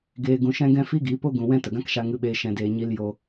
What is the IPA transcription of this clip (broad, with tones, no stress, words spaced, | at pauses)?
ɡeː˨ ɡũ˨ʃɛ̃˧ɡɛ̃˧ fi˦ɡi˨˦po˦ ɡũ˨ wɛ̃˧ tə˨ɡã˦kʃa˧ ŋɨ˧ɓeː˧ʃɛ̃˧ deː˧ ɲi˧l jo˧